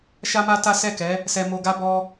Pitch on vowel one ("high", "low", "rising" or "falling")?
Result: high